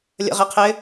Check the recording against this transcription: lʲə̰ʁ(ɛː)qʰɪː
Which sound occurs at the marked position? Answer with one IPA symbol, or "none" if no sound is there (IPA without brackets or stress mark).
ɪː